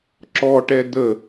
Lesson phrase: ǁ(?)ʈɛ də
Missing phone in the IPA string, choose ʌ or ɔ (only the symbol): ɔ